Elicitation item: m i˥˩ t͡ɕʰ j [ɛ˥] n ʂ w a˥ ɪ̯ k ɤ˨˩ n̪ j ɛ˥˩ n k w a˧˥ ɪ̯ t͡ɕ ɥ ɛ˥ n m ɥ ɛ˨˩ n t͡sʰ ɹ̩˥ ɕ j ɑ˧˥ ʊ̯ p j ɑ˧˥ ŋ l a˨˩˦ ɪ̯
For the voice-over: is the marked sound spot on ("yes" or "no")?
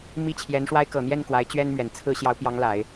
no